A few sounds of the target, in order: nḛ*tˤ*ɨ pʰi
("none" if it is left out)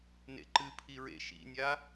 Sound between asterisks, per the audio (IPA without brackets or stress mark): ǃ